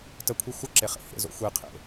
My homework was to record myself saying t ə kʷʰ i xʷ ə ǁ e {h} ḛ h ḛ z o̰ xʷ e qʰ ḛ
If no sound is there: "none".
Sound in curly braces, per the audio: χ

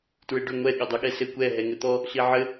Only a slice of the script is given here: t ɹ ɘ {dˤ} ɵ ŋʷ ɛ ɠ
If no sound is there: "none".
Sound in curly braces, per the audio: ɖ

